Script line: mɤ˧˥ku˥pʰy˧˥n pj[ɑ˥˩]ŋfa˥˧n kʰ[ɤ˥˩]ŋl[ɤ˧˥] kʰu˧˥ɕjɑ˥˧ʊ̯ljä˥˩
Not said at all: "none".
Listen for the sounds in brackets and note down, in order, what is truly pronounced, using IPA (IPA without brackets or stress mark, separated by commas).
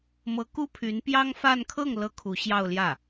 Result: ɑ˥, ɤ˥˩, ɤ˧˥